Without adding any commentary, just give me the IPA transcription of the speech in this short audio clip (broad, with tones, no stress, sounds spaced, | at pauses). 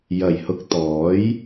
j ɐ˨˩ j h ʊ˨˥ k̚ t̪ ɔː˨˥ j